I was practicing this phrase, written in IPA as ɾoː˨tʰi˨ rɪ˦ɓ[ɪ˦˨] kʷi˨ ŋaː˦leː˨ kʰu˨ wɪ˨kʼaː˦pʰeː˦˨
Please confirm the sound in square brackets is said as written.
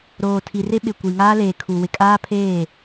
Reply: no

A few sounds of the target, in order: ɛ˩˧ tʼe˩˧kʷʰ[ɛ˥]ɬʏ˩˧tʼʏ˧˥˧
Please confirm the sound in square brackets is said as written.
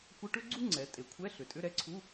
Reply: no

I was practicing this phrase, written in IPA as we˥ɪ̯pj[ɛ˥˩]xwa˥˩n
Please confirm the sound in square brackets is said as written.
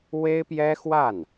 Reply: no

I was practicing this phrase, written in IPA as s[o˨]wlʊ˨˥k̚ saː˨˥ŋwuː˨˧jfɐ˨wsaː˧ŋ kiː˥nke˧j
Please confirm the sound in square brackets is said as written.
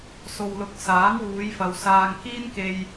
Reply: yes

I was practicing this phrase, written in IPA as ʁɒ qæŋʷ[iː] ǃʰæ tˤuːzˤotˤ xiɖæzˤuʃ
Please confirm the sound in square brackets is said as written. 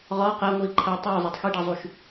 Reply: yes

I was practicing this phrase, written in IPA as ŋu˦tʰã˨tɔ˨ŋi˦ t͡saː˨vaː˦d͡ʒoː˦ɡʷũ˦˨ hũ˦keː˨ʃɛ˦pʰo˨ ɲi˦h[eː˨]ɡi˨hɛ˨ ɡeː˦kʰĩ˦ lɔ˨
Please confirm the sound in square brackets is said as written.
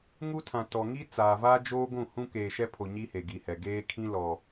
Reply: no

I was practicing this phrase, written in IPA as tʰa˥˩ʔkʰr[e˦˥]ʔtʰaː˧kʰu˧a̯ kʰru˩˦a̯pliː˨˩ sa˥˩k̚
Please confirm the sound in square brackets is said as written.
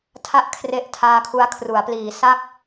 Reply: yes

